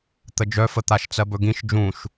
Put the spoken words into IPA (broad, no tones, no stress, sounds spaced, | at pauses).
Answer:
t̪ ə d͡ʒ œ f ə t̪ a ʃ t͡s ɜ b ɵ ɡ ĩ ʃ d͡ʒ ũ ʃ